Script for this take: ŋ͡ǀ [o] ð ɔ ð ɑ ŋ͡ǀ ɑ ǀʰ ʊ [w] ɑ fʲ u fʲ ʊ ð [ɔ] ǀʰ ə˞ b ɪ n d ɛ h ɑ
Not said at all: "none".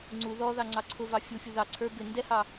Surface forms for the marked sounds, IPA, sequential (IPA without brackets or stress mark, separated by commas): u, v, ɑ